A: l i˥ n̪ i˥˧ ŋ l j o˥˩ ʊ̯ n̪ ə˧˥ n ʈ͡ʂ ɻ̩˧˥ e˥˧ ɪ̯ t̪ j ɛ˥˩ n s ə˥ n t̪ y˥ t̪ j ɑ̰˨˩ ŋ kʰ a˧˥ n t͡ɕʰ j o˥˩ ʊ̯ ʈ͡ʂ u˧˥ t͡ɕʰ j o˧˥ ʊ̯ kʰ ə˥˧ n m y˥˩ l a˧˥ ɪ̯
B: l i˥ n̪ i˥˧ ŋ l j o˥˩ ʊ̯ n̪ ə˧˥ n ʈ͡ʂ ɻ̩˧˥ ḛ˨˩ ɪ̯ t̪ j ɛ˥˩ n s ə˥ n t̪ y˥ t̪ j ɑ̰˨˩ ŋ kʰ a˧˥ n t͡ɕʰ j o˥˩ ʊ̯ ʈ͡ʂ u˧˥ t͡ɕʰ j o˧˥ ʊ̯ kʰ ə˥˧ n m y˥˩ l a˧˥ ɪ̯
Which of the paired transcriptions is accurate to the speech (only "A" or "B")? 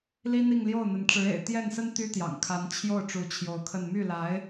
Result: B